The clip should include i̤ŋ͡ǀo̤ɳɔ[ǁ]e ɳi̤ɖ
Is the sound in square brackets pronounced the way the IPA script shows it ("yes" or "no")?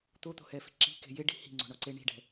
no